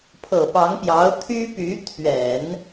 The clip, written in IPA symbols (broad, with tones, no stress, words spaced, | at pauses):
pʰɤ˨˩pɑ˧˥ŋpjɑ˧˥ʊ̯ t̪ʰy˥py˧˥ t̪ʰɥɛ˨˩˦n